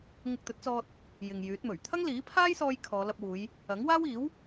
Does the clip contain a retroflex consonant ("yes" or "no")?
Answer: no